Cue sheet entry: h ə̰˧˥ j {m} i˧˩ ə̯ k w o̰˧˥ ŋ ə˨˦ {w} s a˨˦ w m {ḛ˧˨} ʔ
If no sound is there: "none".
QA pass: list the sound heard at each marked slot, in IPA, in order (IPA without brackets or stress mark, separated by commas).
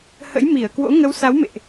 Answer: m, w, ḛ˧˨